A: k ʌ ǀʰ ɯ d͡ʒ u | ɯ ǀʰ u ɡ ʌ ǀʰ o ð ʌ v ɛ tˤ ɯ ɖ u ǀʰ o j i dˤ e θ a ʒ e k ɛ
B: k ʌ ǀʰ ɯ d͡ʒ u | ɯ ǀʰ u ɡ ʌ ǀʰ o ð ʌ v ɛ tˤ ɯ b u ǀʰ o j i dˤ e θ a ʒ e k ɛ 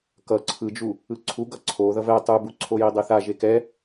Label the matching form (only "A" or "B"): B